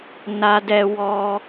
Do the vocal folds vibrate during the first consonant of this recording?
yes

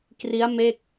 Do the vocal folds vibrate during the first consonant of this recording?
no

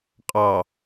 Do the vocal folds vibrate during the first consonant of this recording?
no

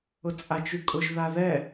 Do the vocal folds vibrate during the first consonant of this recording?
no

